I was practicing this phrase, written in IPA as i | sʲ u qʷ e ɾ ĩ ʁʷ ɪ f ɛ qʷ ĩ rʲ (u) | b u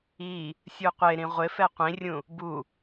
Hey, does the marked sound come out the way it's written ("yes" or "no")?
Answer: no